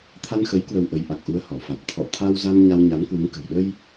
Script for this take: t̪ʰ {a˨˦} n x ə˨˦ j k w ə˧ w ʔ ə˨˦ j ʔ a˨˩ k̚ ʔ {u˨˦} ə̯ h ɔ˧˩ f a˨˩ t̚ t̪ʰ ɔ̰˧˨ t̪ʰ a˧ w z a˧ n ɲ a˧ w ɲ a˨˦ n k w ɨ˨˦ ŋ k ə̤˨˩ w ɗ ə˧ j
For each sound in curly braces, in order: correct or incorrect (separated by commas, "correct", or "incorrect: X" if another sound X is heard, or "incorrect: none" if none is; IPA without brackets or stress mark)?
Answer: incorrect: a˧, incorrect: u˧